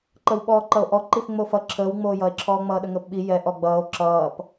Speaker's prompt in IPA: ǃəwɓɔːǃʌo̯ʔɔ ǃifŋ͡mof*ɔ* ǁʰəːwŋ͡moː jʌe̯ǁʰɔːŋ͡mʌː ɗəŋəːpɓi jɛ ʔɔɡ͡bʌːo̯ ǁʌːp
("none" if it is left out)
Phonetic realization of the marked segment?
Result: ʌ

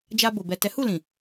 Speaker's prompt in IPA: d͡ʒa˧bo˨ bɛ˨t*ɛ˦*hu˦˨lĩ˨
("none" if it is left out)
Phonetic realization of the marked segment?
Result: ɛ˨˦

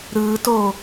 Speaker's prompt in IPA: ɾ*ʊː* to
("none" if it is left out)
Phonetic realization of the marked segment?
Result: ɯː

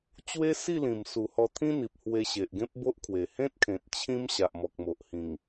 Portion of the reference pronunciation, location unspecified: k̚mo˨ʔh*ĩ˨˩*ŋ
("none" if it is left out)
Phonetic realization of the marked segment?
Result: ĩ˨˩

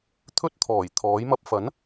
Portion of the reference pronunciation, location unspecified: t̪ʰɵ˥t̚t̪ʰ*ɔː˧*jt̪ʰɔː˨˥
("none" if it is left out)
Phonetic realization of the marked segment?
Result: ɔː˨˩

